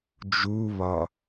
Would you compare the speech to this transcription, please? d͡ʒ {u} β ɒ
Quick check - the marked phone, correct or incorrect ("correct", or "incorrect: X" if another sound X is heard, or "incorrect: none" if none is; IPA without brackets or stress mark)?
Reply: correct